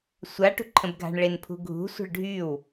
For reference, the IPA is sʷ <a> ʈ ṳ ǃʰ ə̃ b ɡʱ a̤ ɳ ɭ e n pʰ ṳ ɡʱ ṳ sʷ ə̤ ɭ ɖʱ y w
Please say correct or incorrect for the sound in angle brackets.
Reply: correct